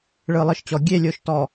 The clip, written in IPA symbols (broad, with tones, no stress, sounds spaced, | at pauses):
ɭ ɯ˨ lˠ ɯ˨ ʃ t͡ɕ ɔ˨ ɡʲ e˦˨ lʲ o˨ ʃ t ɔ˨